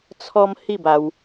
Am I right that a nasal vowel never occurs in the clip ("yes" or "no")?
yes